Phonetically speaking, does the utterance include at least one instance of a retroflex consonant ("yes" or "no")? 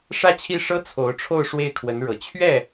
yes